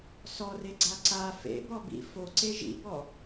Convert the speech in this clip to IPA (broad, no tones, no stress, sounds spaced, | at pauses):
s ɔ r e ɡ͡ǀ a ǀ a f ḛ b ɔ b ḭ f o ǀ e ʒ ḭ b ɔ